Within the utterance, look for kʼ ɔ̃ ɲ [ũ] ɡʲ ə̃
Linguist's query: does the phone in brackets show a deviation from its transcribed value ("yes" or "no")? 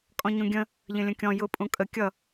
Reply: no